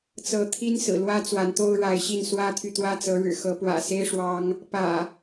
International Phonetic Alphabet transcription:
t͡sɤ˨˦t̪ʰi˦n sɹ̩˨˩lwä˦ t͡swa˨˦nt̪o˦ʊ̯ɻa˨˦ɪ̯ɕi˥˨n swä˦t̪ʰy˨t̪wä˦t͡sɤ˨˦ ɻɻ̩˨˩xɤ˨˦ pwä̰˨˩ se˦ɪ̯ ʂwɑ˦ŋ | pä̰˨˩

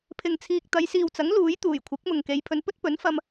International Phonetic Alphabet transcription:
pʰɪ˨ŋt͡sʰiː˨k̚t̪ɐ˨˧j siː˨wt͡sɐ˨˥ŋ luː˨˥jt̪uː˨˩j kʷʰɪ˨˥k̚mʊ˨ŋke˨˧j pʰɵ˨˧npɵ˥t̚pɵ˨˥nfɐ˧m

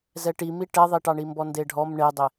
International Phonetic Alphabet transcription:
zɛʈimi ʈɛðˤiʈɑɳi mbɔndeɖʱɔm ɳedˤe

